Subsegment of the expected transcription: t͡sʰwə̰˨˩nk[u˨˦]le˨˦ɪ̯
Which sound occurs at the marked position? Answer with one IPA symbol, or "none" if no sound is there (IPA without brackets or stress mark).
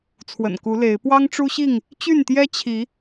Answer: u˨˦